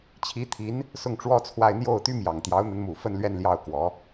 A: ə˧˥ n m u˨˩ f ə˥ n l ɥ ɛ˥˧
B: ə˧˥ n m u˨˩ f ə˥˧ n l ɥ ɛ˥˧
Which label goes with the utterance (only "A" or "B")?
B